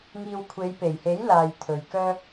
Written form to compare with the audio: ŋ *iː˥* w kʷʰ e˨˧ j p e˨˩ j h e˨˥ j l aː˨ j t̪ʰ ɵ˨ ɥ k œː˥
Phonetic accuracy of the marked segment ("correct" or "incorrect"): incorrect